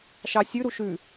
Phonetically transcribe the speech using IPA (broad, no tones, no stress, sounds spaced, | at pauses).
ʃ ɑ sʲ ʉ ɾ u ʃ ʉ